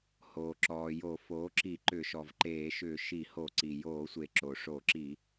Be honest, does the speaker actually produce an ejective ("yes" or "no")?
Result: no